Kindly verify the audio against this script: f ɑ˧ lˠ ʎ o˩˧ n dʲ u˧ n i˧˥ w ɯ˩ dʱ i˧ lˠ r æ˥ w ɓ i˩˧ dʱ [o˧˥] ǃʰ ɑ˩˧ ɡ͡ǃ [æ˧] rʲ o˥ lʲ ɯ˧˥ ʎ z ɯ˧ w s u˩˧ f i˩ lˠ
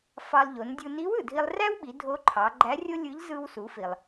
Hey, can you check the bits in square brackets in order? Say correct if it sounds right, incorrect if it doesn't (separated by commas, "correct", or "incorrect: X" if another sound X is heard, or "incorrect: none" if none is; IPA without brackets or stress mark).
correct, incorrect: æ˧˥